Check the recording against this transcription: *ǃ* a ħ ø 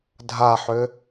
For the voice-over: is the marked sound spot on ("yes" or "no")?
no